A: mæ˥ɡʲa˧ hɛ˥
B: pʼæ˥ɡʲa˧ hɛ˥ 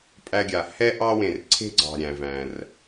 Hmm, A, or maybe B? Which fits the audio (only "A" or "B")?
B